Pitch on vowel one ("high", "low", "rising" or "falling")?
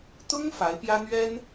high